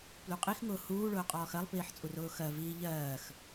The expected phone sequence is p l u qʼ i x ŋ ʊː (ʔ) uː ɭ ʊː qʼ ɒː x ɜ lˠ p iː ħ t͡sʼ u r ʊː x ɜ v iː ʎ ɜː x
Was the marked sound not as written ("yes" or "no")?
yes